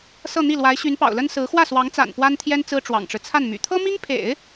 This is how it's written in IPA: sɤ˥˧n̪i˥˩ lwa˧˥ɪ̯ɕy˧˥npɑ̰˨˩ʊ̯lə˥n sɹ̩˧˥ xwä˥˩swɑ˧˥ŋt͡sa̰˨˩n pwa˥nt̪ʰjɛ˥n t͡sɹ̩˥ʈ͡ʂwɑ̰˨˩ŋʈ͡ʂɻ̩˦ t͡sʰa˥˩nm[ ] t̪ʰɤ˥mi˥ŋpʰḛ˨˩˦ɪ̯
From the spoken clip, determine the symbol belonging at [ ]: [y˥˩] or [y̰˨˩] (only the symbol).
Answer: y̰˨˩